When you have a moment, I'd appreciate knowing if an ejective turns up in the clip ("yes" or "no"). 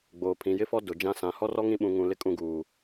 yes